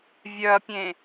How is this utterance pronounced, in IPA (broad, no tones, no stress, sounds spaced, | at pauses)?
vʲ œ ɐ̯ pʲ ẽ